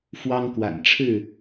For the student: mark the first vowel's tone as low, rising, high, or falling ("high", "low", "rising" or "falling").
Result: high